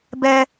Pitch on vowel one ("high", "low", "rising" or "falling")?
high